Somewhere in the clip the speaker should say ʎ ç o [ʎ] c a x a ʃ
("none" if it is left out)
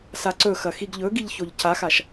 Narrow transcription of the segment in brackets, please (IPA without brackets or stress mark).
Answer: ʎ